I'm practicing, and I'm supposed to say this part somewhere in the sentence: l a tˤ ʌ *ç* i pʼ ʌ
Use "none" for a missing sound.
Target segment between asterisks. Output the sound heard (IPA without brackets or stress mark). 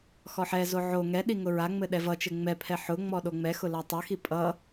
x